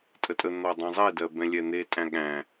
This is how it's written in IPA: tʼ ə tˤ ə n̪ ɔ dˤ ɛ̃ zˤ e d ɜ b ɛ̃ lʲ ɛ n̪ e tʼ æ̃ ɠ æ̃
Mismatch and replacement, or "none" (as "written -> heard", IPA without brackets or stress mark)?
tˤ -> tʼ